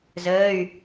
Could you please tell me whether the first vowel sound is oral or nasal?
oral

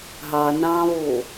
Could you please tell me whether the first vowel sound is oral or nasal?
oral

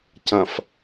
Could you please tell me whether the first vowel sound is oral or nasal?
nasal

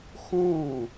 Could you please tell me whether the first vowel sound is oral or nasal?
nasal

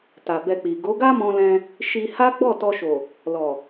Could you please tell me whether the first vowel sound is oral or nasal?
oral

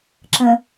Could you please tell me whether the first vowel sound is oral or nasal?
nasal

